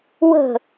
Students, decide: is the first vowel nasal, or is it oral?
oral